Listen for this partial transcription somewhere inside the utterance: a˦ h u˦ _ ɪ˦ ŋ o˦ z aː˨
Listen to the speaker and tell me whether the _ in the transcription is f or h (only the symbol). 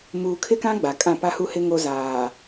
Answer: h